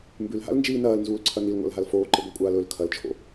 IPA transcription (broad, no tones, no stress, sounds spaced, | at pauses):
m b ʉ l ɦ a̰ l n d͡ʒ iː n ɐː l n z uː l ǀʰ ɐ n i l ŋʷ a̰ l ɦ a l f oː ǃ ɨ ɡʷ a kʷʼ aː l ɵ l kʰ ɐ l t͡ʃʰ o̰